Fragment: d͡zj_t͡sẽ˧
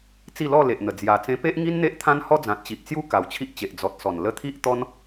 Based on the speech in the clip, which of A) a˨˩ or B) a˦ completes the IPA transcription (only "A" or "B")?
A